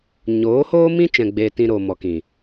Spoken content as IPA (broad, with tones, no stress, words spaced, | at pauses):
ɲoː˨˦hoː˦mĩ˦ t͡ʃɛ̃˧ɡ͡beː˧tĩ˧ ɾoː˨mɔ˨kĩ˨